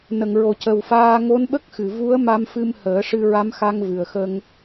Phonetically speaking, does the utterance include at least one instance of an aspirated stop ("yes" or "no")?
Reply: no